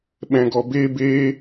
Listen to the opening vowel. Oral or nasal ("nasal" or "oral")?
nasal